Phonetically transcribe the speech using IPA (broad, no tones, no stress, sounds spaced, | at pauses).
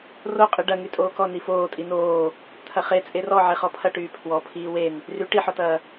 r o qʼ i ɖ ɐ ŋ y tʼ oː k ɔ n i f oː tʼ i n oː | t̪ʰ ɐ χ e t͡sʼ e r ɔ ʕ e χ ɔ pʰ ɐ ʈ yː pʰ w ɔ pʰ iː w e n | r y ʈ i ħ ɔ t ɐː